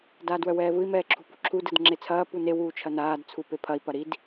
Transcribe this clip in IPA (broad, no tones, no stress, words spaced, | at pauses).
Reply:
daːdwœwɛːvɯi̯ mɛːǁʰṳpṳǁʰu dɯdŋ͡ǁet͡sʰɐː pune wuːt͡ʃʰɐnaːd t͡sʰupepʰɐi̯ pɐɾid